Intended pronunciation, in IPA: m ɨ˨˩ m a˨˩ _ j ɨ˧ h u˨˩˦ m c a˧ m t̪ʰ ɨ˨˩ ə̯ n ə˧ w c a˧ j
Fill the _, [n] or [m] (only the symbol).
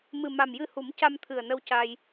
m